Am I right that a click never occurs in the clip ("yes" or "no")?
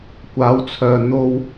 yes